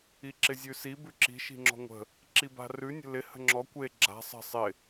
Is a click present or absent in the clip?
present